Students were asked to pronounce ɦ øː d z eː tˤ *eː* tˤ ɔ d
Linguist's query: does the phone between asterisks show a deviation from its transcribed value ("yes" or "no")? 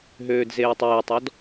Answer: no